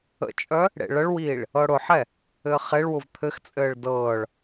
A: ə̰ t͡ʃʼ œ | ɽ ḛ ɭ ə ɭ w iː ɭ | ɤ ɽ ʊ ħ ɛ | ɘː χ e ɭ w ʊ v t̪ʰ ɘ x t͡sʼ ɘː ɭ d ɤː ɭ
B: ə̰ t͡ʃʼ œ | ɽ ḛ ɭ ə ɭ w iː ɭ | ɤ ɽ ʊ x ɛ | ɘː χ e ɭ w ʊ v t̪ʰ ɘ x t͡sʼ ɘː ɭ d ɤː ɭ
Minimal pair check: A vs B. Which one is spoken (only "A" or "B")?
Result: A